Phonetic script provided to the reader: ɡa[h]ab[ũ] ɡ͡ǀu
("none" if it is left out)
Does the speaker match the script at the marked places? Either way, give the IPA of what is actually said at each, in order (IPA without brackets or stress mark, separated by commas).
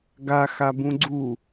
x, ũ